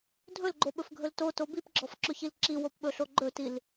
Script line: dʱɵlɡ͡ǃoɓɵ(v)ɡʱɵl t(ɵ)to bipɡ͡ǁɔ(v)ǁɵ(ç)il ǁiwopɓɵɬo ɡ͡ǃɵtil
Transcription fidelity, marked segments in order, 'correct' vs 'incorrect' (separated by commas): incorrect, incorrect, incorrect, correct